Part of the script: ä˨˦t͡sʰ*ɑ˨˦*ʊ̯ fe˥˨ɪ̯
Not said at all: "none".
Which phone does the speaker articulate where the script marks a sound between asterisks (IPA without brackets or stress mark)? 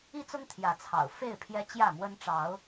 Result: ɑ̰˨˩